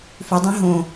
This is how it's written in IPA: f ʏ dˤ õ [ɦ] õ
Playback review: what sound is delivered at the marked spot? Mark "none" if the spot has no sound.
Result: ɦ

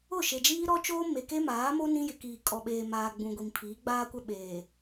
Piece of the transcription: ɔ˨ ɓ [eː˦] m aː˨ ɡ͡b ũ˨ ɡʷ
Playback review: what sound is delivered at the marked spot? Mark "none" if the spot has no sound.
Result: eː˨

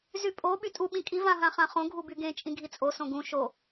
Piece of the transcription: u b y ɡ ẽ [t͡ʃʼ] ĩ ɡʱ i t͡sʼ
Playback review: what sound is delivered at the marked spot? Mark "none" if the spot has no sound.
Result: t͡ʃʼ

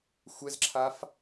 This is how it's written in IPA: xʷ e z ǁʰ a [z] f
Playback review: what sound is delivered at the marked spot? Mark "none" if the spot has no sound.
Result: none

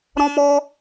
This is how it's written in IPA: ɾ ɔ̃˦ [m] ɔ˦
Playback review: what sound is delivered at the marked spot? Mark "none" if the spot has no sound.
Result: m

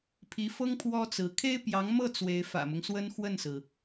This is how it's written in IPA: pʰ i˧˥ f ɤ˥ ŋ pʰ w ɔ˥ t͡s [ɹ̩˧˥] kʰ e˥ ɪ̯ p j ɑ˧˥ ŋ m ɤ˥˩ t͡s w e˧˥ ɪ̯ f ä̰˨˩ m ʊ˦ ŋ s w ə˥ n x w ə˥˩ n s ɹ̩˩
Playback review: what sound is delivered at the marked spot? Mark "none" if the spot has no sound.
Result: ɹ̩˧˥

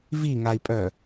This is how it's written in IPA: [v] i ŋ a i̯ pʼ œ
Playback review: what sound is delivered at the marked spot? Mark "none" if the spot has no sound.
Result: v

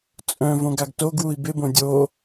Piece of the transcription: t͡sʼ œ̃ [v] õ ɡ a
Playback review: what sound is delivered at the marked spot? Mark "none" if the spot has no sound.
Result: v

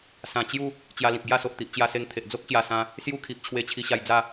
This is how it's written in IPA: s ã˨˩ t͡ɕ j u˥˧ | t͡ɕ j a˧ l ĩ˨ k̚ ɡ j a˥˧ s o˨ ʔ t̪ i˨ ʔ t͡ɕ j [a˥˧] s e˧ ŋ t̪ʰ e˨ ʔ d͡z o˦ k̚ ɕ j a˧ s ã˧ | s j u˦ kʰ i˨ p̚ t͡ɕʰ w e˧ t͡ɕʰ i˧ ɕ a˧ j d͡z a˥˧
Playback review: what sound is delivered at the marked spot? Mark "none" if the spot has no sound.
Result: a˧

